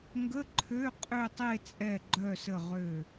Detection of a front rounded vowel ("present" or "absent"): present